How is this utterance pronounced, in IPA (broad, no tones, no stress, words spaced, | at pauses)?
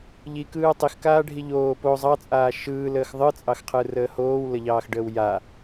ʎikɯː tˤixkaːɖʱi ʎoː po zˤɑt͡sʼaː ʃɯːləːx ðˤɯt͡sʼɑxqʰɯrəː hoːwləʎɑːxɖəːw ja